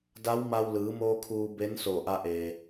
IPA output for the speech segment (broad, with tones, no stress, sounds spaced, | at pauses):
d a˧˥ w m a˧ w l ɯː˩˧ m oː˧ kʰ uː˧ b e˧˥ n s o˧˩ ʔ a˧ ʔ e˩